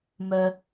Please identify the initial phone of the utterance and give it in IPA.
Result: m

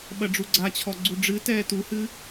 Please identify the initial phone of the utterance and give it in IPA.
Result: ɓ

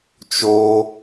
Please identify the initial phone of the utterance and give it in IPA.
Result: t͡ʃ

